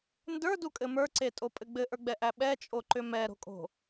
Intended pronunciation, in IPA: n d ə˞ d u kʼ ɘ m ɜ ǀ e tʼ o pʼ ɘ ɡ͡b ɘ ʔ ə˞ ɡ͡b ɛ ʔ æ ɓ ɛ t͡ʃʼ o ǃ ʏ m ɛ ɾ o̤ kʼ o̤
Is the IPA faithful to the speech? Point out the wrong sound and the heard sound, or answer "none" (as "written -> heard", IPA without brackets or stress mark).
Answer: ɜ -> ə˞